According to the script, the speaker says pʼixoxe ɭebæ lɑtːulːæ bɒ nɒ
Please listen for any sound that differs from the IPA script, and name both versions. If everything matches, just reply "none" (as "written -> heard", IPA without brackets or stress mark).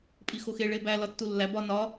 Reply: ɑ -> ɒ